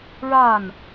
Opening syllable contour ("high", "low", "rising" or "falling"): falling